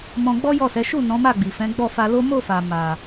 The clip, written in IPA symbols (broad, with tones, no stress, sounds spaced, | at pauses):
m ɔ̃˧ ɡ͡b ɔ˦ j ɔ˦˨ s ɛ˨˦ ʃ u˦˨ n ɔ̃˨˦ m a˦˨ ɡ͡b i˨ f ɛ̃˨˦ ɡ͡b ɔ˦˨ f a˧ l o˦ m o˦˨ f a˨ m a˨